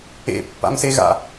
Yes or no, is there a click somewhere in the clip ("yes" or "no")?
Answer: no